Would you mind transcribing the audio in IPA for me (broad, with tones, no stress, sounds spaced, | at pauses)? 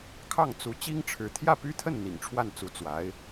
kʰ ɑ˥˩ ŋ t͡s u˧˥ t͡ɕ i˥ ŋ ʈ͡ʂʰ ɻ̩˧˥ t̪ʰ j ä˥˩ p y˥ t̪ʰ ə˥˩ n n̪ ḭ˨˩ ŋ ʈ͡ʂʰ w a˥˩ n t͡s u˧˥ t͡s w a˧˥ ɪ̯